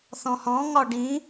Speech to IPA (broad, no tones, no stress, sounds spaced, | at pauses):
θ ɔ̃ h ɔ̃ ŋ ɒ ɖ ĩ